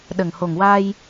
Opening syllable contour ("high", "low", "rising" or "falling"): low